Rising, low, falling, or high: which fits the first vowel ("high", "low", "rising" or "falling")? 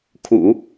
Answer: low